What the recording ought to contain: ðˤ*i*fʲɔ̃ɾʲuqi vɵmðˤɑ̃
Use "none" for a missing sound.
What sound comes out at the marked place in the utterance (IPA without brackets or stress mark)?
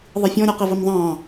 i